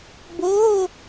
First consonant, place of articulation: labial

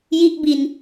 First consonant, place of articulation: palatal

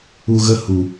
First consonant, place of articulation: velar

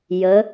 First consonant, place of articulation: palatal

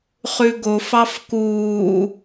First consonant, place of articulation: uvular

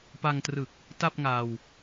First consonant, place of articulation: labial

